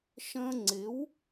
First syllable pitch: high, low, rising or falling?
high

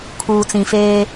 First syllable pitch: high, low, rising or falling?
low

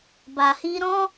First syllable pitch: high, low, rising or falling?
low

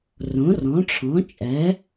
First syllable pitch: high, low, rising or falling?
rising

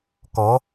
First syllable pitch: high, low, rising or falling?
rising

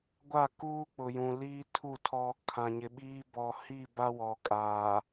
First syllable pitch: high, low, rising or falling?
falling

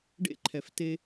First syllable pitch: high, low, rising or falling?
high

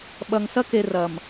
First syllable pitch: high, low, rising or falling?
low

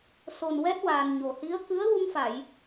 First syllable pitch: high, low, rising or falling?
low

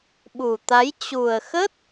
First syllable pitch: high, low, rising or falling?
low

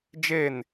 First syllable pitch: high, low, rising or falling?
falling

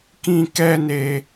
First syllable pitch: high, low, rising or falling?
high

